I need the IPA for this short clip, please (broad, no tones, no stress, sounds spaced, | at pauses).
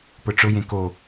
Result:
p ʊ ʈ͡ʂ ʊ j ẽ k o